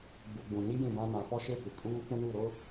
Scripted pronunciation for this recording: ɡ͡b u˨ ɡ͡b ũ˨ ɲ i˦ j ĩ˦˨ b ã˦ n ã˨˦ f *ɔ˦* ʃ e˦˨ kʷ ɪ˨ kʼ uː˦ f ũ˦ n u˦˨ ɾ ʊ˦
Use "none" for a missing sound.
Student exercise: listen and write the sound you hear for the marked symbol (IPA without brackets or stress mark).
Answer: ɔ˦